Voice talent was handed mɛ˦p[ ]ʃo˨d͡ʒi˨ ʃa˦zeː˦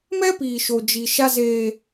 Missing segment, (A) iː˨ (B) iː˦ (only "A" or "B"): A